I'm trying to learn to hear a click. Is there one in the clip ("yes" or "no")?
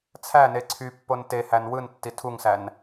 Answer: yes